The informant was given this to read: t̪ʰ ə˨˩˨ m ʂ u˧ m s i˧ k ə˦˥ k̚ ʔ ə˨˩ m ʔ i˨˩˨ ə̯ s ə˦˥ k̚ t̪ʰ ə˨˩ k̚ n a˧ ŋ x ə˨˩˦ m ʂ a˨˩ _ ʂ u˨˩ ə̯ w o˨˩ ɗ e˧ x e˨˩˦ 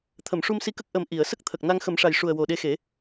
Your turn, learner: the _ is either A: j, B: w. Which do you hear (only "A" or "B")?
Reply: A